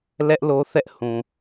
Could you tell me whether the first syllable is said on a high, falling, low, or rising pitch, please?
high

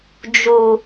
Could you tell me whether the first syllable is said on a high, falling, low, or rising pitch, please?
low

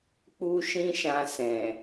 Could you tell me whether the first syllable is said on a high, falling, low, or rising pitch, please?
high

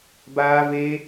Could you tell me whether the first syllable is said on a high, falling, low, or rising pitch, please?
high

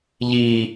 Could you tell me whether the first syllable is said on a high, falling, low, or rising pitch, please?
low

